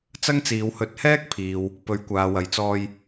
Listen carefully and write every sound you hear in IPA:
t͡s ɐ˥ ŋ t͡s iː˨˧ w h ɵ˨˥ t̚ h ɛː˥ k̚ pʰ iː˨ w | p ɵ˨˧ ɥ kʷ aː˨ w ɐ˨ j t͡s ɔː˧ j

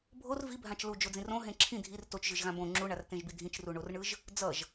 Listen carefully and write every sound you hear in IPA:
bʱ o r v i bʱ ã t͡ʃ l u d͡ʒ o d͡z ĩ r õ ɦ ẽ ǁʰ ĩ dʱ i r t o t͡ʃ ʒ ɯ ʒ ɣ ã b õ ŋ͡ǁ u ɳ a r t ẽ ʒ b i dʱ ĩ t͡ʃ r u ɳ o r ɳ ɯ ʒ | d͡z ʌ ʒ

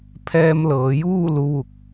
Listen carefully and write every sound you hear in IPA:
pʰ ɛː˧ m l ɤː˩˧ j uː˥˨ l u˧˥ ʋ u˧˩ k̚

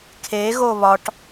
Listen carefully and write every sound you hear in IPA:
kʰ e ɣ o β ɒ ʈ

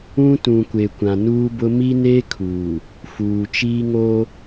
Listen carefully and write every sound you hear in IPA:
ũ˦ t ũ˨ kʷ e˨ kʷ ã˨ n uː˦ b ʊ˦ m i˦ n e˦ kʰ uː˨ | f uː˨ t͡ʃ iː˦ ŋ o˦

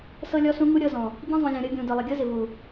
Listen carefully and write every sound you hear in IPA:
s ɤ˧ lʲ ɔ˧ s ũ˧ ŋ u˦ ɾʲ ɤ˧ z ɔ̃˨ | ɟ ĩ˧ zˤ ũ˨ lʲ ɔ̃˨ ɾʲ ɤ˧ ɡʲ ũ˨ d ɤ˨ lˠ ɪ˨ ɡʲ ɤ˦ z ɪ˨ v u˨

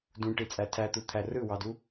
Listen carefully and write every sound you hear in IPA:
d ũ ʈ i t͡sʼ æ tʰ æ t̪ u t̪ʰ æ r ɯ w ɑ d u

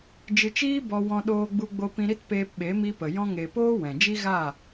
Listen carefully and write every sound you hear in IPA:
d͡ʒ ɨ˨ t͡ʃ iː˧ b ɔ˧ w ɔ̃˧ ɗ oː˧ ɡ͡b u˧ ɡ͡b o˧ p ĩ˧ ɾ i˦ t p eː˧ p ɓ e˨˦ m i˧ p ə˨ j ɔ̃˧ ŋ e˨ p oː˦ w ɛ̃˨ d͡ʒ i˦ ɣ a˦˨

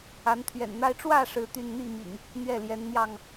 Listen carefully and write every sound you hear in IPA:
a˨˦ n t̪ʰ ɥ ɛ̰˨˩ n n̪ a˦ ɪ̯ ʈ͡ʂ w ä˥˨ ʂ ɻ̩˥˨ t̪ y˥˨ n n̪ i˥˨ m ḭ˨˩ ŋ | n̪ ɥ ɛ˥˨ l j ɛ˨˦ n n̪ j ɑ˥˨ ŋ

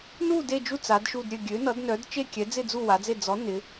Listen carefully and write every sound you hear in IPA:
n u˥˧ d e˥˧ d͡ʒ u˥˧ t͡s a˨˦ d ʃ u˥˧ d ɾʲ ø˥˧ ɡʲ ø˨˦ n ʌ˨˦ d n œ˨˦ d t͡ʃ e˥˧ kʲ ɛ˨˦ d͡z ɪ˥˧ d͡z u˥˧ w a˨˦ d͡z e˥˧ d͡z ɔ˨˦ n ɪ˨˦

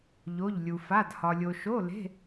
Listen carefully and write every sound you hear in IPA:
ʎ o˧˥˧ ʎ lʲ u˧ f a˧˥˧ d h ɒ˧ lʲ o˧ ʃ o˧˥˧ l e̤˧˥˧

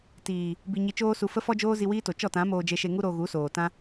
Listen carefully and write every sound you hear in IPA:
t iː˨ | b i˨ ɲ i˨ t͡ʃ oː˧ s u˨ f ə˦ f ɔ˦ d͡ʒ oː˦ z i˧ w iː˦ t o˨ t͡ʃ ɔ˦˨ t ã˨˦ m oː˧ d͡ʒ e˧ ʃ e˧ ŋ u˦ ɾ o˧ ɣ u˨˦ s oː˨ t ã˦

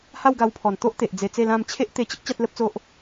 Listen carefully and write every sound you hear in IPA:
h a˥˧ w ɡ a˧ w pʰ ɔ˨˩ n t̪ o˦ ʔ t̪ e˨ ʔ d͡z e˧ t͡s e˥˧ l ã˥˧ m t͡ɕʰ e˦ ʔ t̪ e˧ t͡ɕ ə˦ k̚ t͡ɕ a˦ t̚ l ə˦ p̚ t͡s o˦ ʔ

